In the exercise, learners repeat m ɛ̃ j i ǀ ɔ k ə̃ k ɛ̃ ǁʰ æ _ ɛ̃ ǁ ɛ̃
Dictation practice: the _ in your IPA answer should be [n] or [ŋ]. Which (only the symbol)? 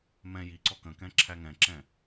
ŋ